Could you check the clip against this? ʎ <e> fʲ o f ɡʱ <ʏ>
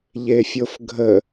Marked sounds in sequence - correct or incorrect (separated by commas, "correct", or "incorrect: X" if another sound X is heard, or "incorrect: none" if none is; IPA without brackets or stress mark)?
correct, incorrect: ə